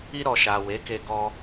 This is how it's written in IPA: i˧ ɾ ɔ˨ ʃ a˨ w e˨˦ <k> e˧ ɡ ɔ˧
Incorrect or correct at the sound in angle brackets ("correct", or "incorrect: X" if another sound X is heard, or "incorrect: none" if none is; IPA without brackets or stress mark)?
correct